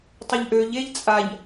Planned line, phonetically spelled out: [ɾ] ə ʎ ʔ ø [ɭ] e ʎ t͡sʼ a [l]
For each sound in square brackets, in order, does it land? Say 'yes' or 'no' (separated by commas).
no, no, no